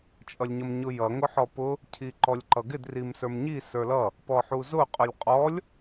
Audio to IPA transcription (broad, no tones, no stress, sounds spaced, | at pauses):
t͡ʃʼ ʌ lʲ ɲ ʌ m ɲ ʊ j ʌ ŋ ʊ ħ ɔ p ʊ | cʰ i ǃ ɔ lʲ ǃ ʌ ɡ ɪ d r i m s ə˞ m ɲ i s ə˞ l ʌ | p ɔ ħ u z ʊ qʼ ʊ lʲ qʼ ɔ lʲ